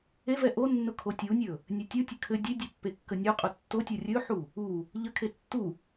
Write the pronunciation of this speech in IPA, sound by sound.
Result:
evɛ ʔonːʊ kʰotʲunʲɵ | nʲetʲutʲɘ kʰɘ dʲedʲɘ pːekːənʲuqʼʊ tːotʲo rʲɵħu | u | ʎəkʰe tːu

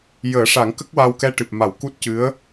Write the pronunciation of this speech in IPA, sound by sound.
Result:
jəː˨˩˦ ʂa˨˩˦ŋ kə˦˥k̚wa˧wkɛ˧ ʈɨ˨˩p̚ ma˨˩˨w ku˦˥t̚cɨ˧˥ə̯

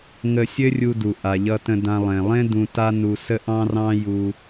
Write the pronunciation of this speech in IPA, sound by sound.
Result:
ŋə˧sʲɘ˥ rʲu˧du˩ ʔa˩ʎʌ˧tə̃˧dã˧ lˠẽ˩lˠẽ˥ dũ˧ ta˥nu˧ sə˥ʔɑ̃˥rɑ̃˥ju˧

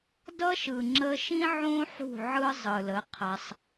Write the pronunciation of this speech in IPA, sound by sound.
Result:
dʌ˦ʃɯ˨ ŋ͡ǁə˧ʃĩ˦ ʕõ˦ ħṳ˦˨ ʕɯ˦ zˤɯ˨lə˨˦ qʰa˧sˤ

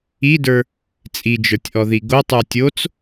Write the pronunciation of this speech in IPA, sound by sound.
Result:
idə˞ | t͡sʼid͡ʒə˞tʲʔɔði ɡotˤə˞ tʲot͡s

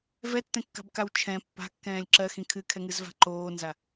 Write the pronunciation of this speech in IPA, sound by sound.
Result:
vɛtːɛ̃kːa̤bkaw t͡ʃʰɛ̃ pːa̤kːɛ̃ːlʲ ǁɜxĩ kʰɨkʰɛŋɨzva̤ ǃoːnza

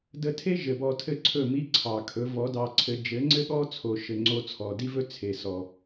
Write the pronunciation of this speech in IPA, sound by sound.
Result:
də˧tʰe˦ ʒɘ˨bɔ˧tʰɘ˦ǀʰɵ˦˨ mi˦ǀʰɑ˨kʰɵ˨˦ vɔ˨˦dɑ˧ǀʰɘ˧ d͡ʒɘ˨˦ŋ͡ǀɘ˦ɠɔ˦ t͡sʰo˨ʃɘ˨ŋ͡ǀo˧ t͡sʰɔ˨di˦vɵ˦ t͡sʰe˨sɔ˨

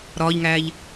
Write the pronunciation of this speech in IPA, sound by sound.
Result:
ɾɒːʎŋæːʎ

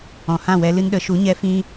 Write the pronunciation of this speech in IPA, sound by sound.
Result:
ɔ̃˨hã˦˨wɛ˧ lɨ˧nɗə˨˦ ʃu˨˦ɲɛ˧ fĩ˦

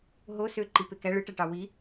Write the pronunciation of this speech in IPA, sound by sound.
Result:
ɦo søǃi pekæ ɭɯʈæʈɑ wi

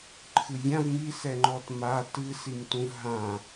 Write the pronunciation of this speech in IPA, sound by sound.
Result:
ǃʰɨvʲãv misɛŋ͡ǃɔt ma tɨsimtũv ɦã

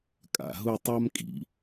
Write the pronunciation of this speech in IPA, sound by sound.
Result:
kʼa̰˧˩ɦʊ˥˧tˤa˥mkʼḭ˩˧

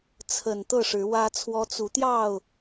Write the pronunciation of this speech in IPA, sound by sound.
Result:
t͡sʰə˨˩n t̪ɤ˥˨ʂɻ̩˨˦wä˦t͡sʰwɔ˦ t͡su˨˦t̪jɑ˥˨ʊ̯

